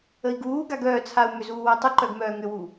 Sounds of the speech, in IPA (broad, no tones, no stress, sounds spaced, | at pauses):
ə i̯ ɡ uː ɡ a ɡ œː t͡sʰ a u̯ m ʏ z uː w u tˤ ʏ ǃ œ ɡ m œː ŋ ʏ w u